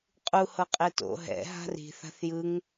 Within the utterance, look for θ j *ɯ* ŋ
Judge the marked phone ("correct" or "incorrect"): correct